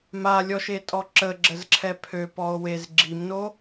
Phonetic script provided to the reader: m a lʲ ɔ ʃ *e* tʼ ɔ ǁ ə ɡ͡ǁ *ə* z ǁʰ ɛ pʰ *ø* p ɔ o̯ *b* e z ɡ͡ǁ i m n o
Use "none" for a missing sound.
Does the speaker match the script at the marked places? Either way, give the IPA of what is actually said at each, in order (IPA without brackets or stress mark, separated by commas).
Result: e, ə, ø, w